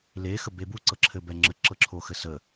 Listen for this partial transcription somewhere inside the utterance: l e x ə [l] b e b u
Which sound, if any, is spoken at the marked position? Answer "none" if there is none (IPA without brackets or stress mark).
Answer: none